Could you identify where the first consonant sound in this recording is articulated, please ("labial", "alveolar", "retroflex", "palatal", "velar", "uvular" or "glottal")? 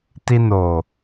alveolar